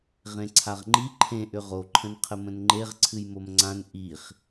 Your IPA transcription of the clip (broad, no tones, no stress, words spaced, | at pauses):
ʁẽǀʰaʁŋ͡ǃi ǃʰẽ ʔʏʁo ǃʰə̃nqʰəmə̃nŋ͡ǃeʁ ǀʰɨjmomŋ͡ǀãn ʔiχ